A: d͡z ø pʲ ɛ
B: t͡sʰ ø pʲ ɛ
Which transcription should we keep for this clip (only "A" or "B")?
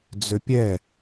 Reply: A